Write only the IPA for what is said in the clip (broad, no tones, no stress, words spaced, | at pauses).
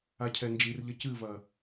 acʰɛnd͡ʒirʎɐ cɨvɐ